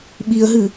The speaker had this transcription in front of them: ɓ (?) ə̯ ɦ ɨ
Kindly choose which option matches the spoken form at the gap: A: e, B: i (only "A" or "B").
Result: B